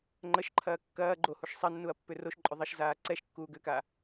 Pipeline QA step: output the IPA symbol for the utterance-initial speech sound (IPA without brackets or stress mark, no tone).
ŋ͡ǃ